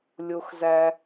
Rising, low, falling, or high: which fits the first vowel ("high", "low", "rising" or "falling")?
high